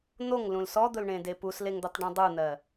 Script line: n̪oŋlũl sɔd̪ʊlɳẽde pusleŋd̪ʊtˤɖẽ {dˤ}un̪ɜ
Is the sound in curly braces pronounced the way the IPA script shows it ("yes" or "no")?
yes